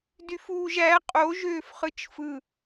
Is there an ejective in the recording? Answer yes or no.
yes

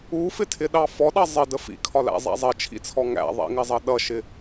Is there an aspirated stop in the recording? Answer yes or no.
yes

